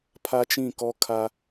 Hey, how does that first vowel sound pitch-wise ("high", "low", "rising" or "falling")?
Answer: high